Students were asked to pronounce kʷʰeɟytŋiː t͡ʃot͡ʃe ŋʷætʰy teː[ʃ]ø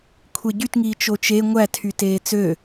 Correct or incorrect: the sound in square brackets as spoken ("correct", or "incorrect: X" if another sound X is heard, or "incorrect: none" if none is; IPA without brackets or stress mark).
incorrect: t͡s